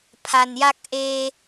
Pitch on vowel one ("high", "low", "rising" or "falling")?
low